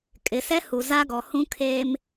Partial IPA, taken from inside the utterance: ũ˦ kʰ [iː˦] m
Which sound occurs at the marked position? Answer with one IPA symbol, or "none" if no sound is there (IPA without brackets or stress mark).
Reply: eː˦